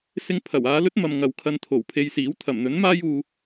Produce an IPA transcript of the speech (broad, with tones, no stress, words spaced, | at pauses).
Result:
sɪ˧ŋpʰɐ˨˩waː˧lɵ˥t̚ mɐ˧mŋɐ˨w kʰɐ˧nt̪ʰo˨˩wpʰe˧jsiː˨˥w t̪ʰɐ˨˩mn̪ɵ˨˥nmaː˥j uː˧